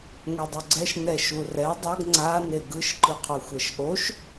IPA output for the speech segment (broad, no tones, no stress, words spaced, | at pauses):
ŋʷedˤoɡ͡ǀɛʃ nɛʃurɛ dˤʌɡ ŋ͡ǀa neɡɯʃ ǃɯqʰoxʷɛʃʔoʃ